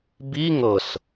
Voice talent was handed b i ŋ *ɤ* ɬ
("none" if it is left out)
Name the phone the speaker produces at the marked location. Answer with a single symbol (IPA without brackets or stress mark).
ɤ